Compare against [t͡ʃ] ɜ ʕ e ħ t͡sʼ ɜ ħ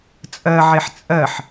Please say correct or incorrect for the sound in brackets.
incorrect